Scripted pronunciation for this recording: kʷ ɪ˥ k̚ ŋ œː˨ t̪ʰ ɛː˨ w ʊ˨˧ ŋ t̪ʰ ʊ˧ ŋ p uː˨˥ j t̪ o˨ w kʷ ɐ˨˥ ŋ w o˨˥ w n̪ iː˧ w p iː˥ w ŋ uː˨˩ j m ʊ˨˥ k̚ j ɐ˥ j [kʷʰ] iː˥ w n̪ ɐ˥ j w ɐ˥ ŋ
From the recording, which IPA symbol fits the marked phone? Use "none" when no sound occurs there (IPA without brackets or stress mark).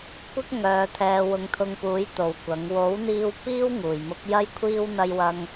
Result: kʷʰ